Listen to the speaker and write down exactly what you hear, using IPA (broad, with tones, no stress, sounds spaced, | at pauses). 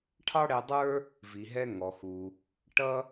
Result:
ʈʰ ɑ˥ ɽ ɛ˧ dˤ ə˞˥ | v i˩ ɦ ɛ˧ ŋ ɔ˩ x u˩ | ʈ ʌ˥